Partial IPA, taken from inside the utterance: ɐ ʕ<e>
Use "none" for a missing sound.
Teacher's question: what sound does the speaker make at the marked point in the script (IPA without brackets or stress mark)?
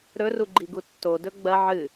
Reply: ɨ